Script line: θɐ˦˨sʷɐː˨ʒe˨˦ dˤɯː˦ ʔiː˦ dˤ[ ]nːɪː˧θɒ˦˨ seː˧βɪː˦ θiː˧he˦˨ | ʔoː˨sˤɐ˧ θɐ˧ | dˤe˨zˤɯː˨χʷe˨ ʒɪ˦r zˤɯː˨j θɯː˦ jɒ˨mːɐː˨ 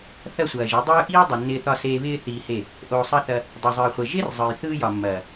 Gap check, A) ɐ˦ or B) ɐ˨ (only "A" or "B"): B